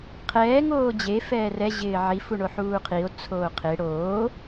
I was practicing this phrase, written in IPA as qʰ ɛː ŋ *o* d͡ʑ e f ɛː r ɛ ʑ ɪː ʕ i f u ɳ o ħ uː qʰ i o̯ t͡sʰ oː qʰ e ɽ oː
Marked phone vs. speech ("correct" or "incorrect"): incorrect